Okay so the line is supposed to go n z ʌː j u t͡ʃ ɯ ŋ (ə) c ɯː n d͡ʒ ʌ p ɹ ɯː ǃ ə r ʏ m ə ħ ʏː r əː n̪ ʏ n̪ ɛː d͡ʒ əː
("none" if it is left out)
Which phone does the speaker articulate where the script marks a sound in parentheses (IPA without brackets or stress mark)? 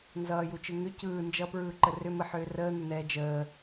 ʏ